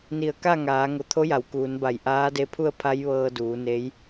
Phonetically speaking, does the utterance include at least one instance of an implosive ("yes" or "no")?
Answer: no